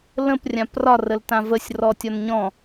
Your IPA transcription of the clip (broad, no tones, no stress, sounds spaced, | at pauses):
l ə̃ p rʲ ã p r ɒ r ə l t ã v ə sʲ r ɔ tʲ ɒ n ɲ ɔ̃